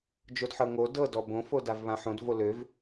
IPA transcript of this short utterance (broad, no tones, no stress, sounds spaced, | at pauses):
d͡ʒ o d ħ ɤ ŋ o d ɤ d ɔ b õ f o d a v β ã ħ õ d v o l ø v